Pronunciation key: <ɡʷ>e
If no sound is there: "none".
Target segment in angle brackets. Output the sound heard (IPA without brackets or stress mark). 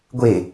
ɡʷ